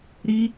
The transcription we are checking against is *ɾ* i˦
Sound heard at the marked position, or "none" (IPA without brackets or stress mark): ɾ